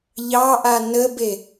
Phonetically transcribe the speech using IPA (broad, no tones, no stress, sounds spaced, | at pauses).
ʎ ɑ ʔ a n ə b e